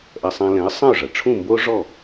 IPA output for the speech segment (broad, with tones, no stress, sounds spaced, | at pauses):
ʔ ɐ˧ sˤ ã˧ l ɛ̃˩˥ ə̯ sˤ ɐ̃˥˩ ʊ̯ ʐ ɐ˩ ʈ͡ʂʰ ũ˥˩ m b o˥ ʐ ɔ˥˩